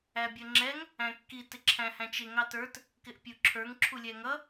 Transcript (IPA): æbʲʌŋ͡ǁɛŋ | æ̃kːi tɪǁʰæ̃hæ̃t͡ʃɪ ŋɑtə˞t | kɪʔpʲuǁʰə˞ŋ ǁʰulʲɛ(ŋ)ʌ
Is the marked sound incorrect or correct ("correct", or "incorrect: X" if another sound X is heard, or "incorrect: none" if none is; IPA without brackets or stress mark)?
correct